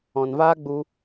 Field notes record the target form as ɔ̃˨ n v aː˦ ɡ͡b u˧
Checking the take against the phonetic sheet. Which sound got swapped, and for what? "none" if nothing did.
none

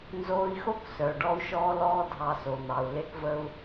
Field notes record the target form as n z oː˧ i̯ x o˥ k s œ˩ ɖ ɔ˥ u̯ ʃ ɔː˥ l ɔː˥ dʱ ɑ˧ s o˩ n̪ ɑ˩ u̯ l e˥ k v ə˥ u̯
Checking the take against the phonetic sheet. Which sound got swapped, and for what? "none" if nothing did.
none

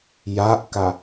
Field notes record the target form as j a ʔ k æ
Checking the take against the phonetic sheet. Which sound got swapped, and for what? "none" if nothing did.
æ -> a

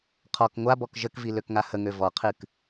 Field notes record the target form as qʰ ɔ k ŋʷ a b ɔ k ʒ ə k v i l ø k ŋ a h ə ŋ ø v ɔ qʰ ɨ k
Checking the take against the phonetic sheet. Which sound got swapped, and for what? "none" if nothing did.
none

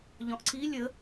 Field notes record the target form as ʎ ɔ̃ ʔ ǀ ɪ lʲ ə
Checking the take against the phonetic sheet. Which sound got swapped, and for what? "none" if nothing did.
ɪ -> i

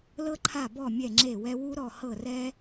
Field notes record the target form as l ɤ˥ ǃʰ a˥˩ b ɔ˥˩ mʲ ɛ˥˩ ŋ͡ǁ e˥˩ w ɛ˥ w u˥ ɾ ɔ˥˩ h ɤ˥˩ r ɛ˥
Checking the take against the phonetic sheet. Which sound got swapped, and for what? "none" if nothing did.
none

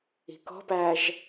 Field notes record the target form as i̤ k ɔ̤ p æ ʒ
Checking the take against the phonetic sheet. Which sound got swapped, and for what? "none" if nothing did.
none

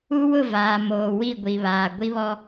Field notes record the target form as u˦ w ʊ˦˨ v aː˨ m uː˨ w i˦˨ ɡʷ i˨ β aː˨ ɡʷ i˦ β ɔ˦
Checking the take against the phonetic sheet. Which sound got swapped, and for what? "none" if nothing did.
uː˨ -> oː˨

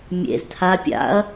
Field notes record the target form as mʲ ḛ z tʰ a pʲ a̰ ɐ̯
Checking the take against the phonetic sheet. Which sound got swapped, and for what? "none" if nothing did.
none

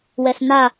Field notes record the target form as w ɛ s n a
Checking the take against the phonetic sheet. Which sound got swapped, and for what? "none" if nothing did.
none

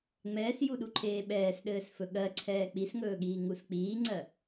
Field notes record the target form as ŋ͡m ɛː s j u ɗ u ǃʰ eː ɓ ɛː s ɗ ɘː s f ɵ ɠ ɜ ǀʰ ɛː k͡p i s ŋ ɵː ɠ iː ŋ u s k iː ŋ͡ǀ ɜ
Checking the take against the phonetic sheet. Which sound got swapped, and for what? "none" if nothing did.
k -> k͡p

